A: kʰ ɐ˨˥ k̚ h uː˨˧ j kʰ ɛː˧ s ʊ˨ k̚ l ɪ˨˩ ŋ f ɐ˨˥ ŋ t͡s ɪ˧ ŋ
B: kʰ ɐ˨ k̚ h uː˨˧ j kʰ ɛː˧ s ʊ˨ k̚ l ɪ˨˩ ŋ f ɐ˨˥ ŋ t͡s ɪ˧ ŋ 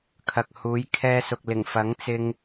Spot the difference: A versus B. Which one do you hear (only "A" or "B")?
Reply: B